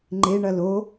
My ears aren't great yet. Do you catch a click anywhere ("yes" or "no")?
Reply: yes